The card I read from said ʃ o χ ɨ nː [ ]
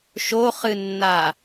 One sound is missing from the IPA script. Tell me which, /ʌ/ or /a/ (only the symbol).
a